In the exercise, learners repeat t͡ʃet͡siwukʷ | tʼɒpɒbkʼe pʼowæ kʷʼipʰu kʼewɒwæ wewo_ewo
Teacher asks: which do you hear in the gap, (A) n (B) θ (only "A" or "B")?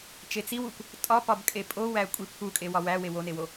A